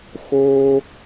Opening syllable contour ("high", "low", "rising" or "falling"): high